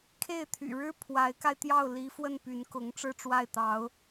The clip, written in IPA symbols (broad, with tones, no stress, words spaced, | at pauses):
kʰe˥˩ɪ̯t̪ʰy̰˨˩ɻɻ̩˥ pʰwa˧˥ɪ̯ka˧ɪ̯t̪jɑ˥˩ʊ̯ li˧˥ fwə˥˩n py˧˥nkʊ˧˥ŋ ʈ͡ʂɻ̩˥˧ʈ͡ʂwa˥˩ɪ̯t̪ɑ˧˥ʊ̯